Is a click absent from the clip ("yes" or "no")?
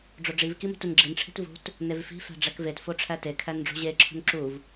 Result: no